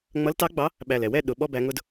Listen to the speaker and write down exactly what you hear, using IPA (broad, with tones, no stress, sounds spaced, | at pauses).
ŋ͡m ʌ˨˦ l t ɑ˨˦ ɡ͡b ɑ˨˦ | ɓ æ˨˩ l ɛ˨˩ w ɛ˥˨ ɗ ʊ˨˩˦ ɓ ɔ˦ b æ˨˦ ŋ ʊ˦ d